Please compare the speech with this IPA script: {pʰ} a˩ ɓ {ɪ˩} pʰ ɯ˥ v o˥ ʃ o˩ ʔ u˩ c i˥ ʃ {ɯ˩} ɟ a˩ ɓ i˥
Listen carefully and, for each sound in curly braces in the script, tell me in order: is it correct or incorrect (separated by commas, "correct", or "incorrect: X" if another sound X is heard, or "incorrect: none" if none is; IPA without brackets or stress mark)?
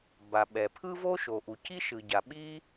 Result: incorrect: b, incorrect: ɛ˩, correct